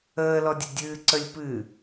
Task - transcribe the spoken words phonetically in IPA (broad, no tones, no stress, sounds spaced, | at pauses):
əː l ɔ dʲ ə dʲ ɨː ǀ ə lʲ p ɨ